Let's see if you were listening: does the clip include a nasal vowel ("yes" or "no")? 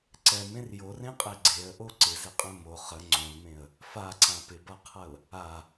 yes